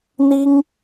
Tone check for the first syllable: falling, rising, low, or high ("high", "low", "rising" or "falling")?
high